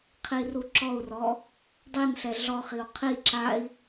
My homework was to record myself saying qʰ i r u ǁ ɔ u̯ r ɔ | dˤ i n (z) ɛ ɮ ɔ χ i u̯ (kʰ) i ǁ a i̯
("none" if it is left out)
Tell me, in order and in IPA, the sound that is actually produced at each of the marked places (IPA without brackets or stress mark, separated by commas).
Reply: ɬ, qʰ